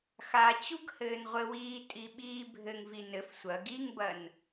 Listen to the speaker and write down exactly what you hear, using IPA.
x a t͡ɕ u ɡ h ɘː n ʁʷ ɘ w iː tʼ i ɓ iː bʱ ɘ ŋ v i n ɘ f sʷ ɐ ɡ i ŋ b ɐ n

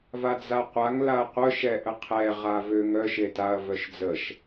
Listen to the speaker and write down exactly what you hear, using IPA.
v a d͡z a qʷ a ŋ l a ɐ̯ qʷ œ ʃ ɛ ʔ ə qʰ ɛ ʁ a v ø ŋ œ ʃ e t a ɐ̯ v œ ʃ d͡z ə ʃ

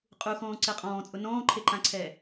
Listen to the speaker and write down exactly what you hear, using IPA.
qʼ u x ɔ̃ː ǀ e qʼ ɔ̃ː t͡sʼ ʊ n ɔ̃ː ǃʰ e ǃ ã ǀʰ ɛː

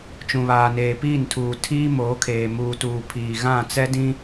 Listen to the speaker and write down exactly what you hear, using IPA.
t͡ʃ ũ˨ β aː˨ n eː˨ p iː˦˨ n tʰ uː˨ tʰ iː˦ m oː˨˦ kʰ eː˨ m uː˨ t uː˨ pʰ iː˨ ɣ ã˦˨ t͡s ɛ˦ d ĩ˦

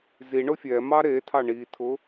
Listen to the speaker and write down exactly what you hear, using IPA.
z i ɳ ʊ fʲ ɛ m ɑ ɾ e tʰ ɑ ɳ i tʰ ʊ

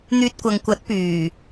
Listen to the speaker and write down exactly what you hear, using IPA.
n̪ yː˧ t̚ kʷ ɐ˨ ŋ kʷ ɐ˨˥ t̚ p yː˨˩

